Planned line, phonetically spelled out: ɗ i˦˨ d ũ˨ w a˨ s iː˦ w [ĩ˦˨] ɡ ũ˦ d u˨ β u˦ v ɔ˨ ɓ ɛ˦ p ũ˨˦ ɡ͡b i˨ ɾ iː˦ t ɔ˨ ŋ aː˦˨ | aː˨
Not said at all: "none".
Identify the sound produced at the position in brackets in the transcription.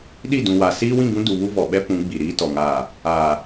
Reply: ĩ˦˨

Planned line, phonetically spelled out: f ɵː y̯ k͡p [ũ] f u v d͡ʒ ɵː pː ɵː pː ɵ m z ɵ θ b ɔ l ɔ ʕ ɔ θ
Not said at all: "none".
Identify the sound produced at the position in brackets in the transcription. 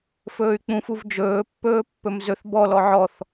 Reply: ũ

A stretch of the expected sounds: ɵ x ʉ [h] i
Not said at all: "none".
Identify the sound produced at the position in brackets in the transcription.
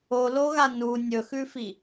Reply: f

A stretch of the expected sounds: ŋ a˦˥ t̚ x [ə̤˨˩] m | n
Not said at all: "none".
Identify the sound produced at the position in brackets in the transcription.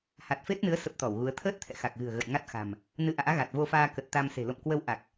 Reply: a̤˨˩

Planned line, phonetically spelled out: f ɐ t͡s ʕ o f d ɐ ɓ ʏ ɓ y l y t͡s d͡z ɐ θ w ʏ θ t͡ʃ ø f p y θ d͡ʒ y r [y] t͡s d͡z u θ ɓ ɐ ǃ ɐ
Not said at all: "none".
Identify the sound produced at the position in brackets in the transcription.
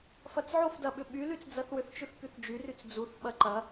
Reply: y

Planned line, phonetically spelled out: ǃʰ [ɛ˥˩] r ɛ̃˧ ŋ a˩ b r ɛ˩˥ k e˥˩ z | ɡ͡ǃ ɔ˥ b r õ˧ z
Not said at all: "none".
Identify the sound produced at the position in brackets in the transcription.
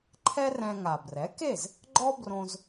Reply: ɛ˥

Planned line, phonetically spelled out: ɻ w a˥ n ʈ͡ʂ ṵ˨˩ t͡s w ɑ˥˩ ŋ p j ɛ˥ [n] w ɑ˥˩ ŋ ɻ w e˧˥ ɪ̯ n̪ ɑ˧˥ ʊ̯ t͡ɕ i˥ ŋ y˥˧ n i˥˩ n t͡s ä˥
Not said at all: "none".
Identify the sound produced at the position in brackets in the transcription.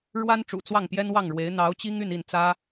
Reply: n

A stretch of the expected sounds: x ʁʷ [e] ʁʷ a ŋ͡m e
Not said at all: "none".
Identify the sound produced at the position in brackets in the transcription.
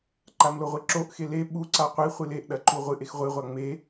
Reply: ɨ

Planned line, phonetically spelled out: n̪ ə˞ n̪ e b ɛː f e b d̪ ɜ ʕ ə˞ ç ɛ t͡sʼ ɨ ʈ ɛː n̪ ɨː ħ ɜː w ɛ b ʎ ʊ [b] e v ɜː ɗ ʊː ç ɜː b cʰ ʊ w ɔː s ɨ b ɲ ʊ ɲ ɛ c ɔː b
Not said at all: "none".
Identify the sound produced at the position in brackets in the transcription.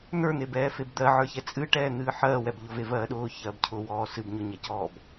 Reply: v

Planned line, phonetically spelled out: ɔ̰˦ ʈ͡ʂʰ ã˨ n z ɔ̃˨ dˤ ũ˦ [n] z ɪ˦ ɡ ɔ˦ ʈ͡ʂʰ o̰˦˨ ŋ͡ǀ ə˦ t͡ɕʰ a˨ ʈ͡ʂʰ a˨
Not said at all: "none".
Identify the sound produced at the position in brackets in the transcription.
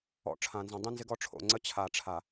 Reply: n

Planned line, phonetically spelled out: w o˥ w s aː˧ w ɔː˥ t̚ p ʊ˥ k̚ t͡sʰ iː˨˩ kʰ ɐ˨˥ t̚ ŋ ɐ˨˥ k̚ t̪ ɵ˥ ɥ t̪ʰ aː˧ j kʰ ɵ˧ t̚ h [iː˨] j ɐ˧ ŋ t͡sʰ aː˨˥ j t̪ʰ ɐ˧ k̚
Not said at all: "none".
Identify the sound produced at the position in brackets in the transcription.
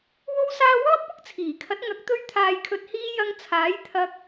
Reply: iː˥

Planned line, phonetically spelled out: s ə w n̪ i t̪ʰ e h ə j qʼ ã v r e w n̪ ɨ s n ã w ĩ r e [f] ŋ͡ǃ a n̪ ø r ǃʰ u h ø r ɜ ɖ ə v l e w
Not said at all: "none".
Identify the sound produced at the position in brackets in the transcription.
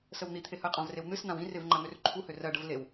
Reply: v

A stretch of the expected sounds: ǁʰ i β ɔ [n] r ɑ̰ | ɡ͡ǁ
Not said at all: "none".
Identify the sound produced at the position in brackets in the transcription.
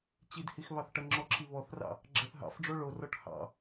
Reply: θ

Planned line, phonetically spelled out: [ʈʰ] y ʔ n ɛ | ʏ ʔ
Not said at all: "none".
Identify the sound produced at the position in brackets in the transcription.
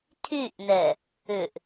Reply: tʰ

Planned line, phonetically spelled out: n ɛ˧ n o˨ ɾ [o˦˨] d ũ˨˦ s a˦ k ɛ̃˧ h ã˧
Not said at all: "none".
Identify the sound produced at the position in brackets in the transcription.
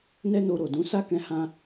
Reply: o˨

